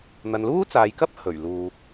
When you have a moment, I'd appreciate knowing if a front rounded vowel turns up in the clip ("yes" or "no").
no